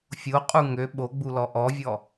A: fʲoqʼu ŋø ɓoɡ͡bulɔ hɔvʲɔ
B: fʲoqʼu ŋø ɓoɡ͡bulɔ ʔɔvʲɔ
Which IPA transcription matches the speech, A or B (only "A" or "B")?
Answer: B